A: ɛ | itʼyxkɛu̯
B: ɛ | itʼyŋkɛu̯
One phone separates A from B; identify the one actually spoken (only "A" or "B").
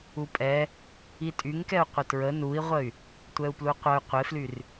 B